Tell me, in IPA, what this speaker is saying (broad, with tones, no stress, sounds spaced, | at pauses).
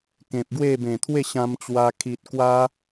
k ẽ˨ p̚ ɡ w e˥˧ b ẽ˨˩ t̪ʰ w e˥˧ ɕ ã˧ m t͡ɕ w a˧ kʰ i˨ t̚ k w a˦